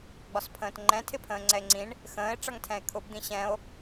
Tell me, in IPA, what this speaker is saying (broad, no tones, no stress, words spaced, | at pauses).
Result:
ɡ͡bɒspʰə̃ːtŋ͡ǃɛ̃ tʰɪpʰə̃ːŋ͡ǀɛe̯ŋ͡ǀĩɳ | xə̃ːe̯ ʈ͡ʂʌŋtʰɛ̃e̯kʰʊb d̪ĩɕɛ̃o̯